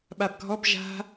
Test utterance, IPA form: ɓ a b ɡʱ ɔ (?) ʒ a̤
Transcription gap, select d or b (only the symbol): b